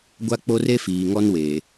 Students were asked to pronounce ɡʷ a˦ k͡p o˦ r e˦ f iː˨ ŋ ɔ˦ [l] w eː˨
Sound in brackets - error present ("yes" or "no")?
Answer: yes